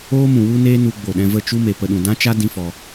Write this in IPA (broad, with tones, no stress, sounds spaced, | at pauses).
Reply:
oː˦ m ũ˨ w u˦ n eː˦ n u˧ ɡ͡b o˨ ɗ ɛ̃˧ v ə˦˨ t͡ʃ u˦ m e˨ p ə˧ ɗ ũ˨ d ã˦ t͡ʃ a˦ d ĩ˦ f ɔ˧